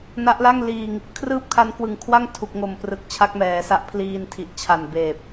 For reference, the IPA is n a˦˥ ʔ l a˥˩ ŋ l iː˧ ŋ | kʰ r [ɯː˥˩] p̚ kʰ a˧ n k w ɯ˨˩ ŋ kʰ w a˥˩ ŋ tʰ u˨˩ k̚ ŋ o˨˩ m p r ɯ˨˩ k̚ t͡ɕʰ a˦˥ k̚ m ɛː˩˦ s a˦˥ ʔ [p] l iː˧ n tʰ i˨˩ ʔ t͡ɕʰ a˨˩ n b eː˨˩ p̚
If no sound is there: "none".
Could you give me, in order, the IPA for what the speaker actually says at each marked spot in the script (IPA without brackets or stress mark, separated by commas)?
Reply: ɯː˥˩, pʰ